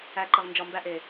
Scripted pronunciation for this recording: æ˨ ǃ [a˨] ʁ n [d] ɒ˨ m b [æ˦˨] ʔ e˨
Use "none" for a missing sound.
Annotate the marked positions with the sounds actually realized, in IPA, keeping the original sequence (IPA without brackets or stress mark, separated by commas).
ə˨, d͡ʒ, æ˨